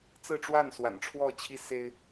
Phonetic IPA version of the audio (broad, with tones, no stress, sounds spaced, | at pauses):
t͡s ɹ̩˥˧ ʈ͡ʂ w a˥˩ n s w a̰˨˩ n ʈ͡ʂʰ w ɔ˥˩ t͡ɕʰ i˥ s e˥ ɪ̯